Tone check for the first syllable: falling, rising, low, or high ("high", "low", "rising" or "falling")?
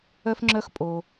high